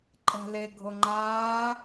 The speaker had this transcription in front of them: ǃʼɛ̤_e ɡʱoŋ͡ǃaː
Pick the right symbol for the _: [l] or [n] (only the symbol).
l